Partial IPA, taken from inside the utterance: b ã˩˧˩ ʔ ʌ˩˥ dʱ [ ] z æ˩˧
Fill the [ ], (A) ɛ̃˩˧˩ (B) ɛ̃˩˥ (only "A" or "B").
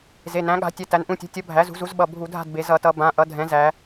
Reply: B